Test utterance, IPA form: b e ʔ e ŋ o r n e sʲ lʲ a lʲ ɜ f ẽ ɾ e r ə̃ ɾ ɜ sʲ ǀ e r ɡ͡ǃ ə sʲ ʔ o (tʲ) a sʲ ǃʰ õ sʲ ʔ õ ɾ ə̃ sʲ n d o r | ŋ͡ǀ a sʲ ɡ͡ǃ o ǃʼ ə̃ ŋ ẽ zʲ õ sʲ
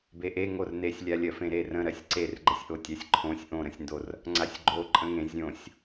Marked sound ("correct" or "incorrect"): correct